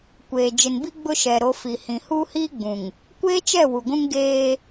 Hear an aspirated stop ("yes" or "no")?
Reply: no